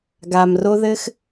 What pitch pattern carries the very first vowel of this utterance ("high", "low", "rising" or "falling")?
low